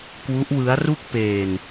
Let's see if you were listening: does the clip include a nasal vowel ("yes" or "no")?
no